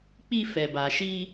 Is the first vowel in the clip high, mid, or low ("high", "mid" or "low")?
high